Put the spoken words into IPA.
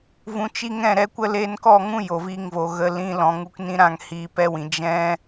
v ũ˧ t͡ʃ i˦ ŋ ɛ̃˦˨ ɾ ɛ˧ kʷ ə˦ l e˦ n k ɔ˦˨ ŋ ũ˦ j o˨ v iː˧ ŋ v o˨ ɣ ə˧ l ĩ˧ l ɔ̃˨ ŋ u˧ k n ĩ˧ ɾ ã˦˨ ŋ h iː˧ p ɛ˦ w ĩ˨ d͡ʒ ɛ̃˧

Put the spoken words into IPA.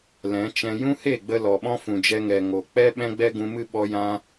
l ɛ̃˨˦ t͡ʃ ɛ̃˧ j ũ˦ h e˦˨ ɡ͡b ə˧ l ɔ˨ ɓ ɔ̃˦ f ũ˨ d͡ʒ ɛ˧ ŋ ɛ˨ ŋ o˨ k͡p ɛ˦ ɓ ɛ̃˦ ɡ͡b ɛ˦ ɡ ũ˧ m ɨ˦ ɓ ɔ˧ j ã˧

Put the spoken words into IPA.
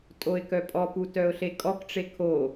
tʼ o ɪ̯ k œ pʼ ɔ p u t œ ʊ̯ ɬ e kʼ ɔ k ʈ͡ʂ e kʰ o

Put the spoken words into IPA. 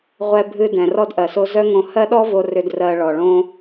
ʁʷ ɛ˧ bʱ ɨ˧ d ɛ̃˨ r ɔ˧ d ʔ ɜ˨ s o˧ z œ˦ ŋ õ˧ h ɜ˦ ɗ ɔ˦ v o˧ r ʏ˧ d r ɜ˧ ɭ ɔ˨ ɭ õ˦

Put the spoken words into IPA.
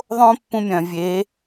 ðˤ õ˥ pː ũ˧ mʲ œ̃˩ vʲ e˩˧

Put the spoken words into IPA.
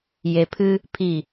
j e˨ pʰ ɨ˦ | pʰ i˨

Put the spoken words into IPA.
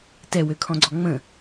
t ɛ w ø kʰ ɔ̃ ɡ͡ǀ ɔ ŋ͡m ə̃

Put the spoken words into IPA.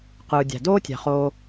q ɯː˩ dʲ æ̤˩ d oː˥ tʲ æ̤˩ χ oː˩

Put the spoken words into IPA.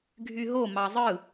ɡʱ y ɦ o m ɑ zˤ ɯ

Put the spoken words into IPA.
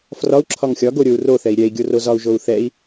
f r ɒ u̯ ǁʰ ɒ ŋ xʲ ɒ ɡ o ɾʲ o u̯ r o θ ɛ i̯ ɾʲ ɛ i̯ ɡʲ o r o z ɒ u̯ ʒ o u̯ θ ɛ i̯

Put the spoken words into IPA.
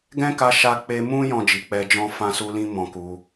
ɡ ɛ̃˦ k a˧ ʃ a˧ k͡p e˧ m ũ˦ j ɔ̃˦˨ d͡ʒ i˨ k͡p ɛ˧ d͡ʒ ɔ̃˦ f ã˦ s u˦ l ĩ˦ m ɔ̃˧ k u˧

